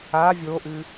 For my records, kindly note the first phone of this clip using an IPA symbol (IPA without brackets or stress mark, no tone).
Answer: a